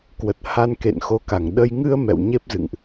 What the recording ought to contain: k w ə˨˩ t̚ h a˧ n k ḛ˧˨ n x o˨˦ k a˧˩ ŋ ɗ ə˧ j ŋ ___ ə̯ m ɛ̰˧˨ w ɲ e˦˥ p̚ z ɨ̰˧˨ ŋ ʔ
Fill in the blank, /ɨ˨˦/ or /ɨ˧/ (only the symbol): ɨ˧